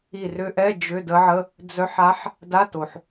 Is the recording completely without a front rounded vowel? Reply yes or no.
no